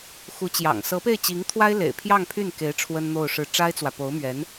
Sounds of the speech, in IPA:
xu˧˥t͡ɕjɑ̰˨˩ŋ sɤ˧˥pe˥˩ɪ̯t͡ɕi˧˥ŋt̪ʰwa˥ɪ̯ lḛ˨˩ɪ̯ pʰjɑ˥˧ŋpʰy˥˩nke˧˥ɪ̯ ʈ͡ʂʰwə˥nn̪o˥˧ʊ̯ʂɻ̩˥˩ ʈ͡ʂa˥ɪ̯t͡swä˨ po˧˥ʊ̯mɥɛ˧˥n

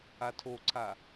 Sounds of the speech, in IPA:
atʰoǀʰa

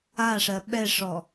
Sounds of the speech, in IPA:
aʂɜ ɓɛʂɔ

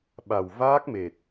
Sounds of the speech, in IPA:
ɓa˨˩wvaː˦˥k̚me˨˩t̚

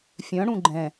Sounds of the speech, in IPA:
fʲœ̃ ɽũɡ͡ǃɛ̃

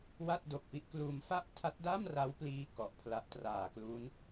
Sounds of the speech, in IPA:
wa˥˩t̚ do˨˩k̚pi˦˥ʔkluː˧m fa˥˩ʔtʰa˦˥t̚da˥˩mra˦˥w pliː˥˩ kɔ˨˩ʔpʰla˦˥ʔ traː˨˩klu˦˥n

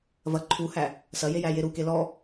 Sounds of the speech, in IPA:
vɐ ǃʰuhæ | sɐje jæjeɾuke lɔ

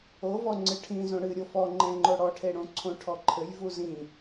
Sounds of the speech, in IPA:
ovɔ ŋ͡ǀɨʈʰĩ zõɽɨ ɾʲofɔŋ͡ǃɛ̃ŋ͡ǃo ɽɔʈʰeɽõ ǀʰõʈʰɔǃʰɘj vuzĩ

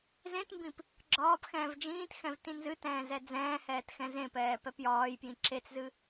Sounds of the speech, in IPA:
zẽtmbĩp | ɡ͡ǁɒːp xɛ̃ːvd͡ʒĩːtxɛ̃v tĩnzɨtɛ̃ː zɛd͡zɛ̃ːhɛːt xɛ̃zẽpɛː pɛpjɒːjpjĩ ǁet͡szɨ

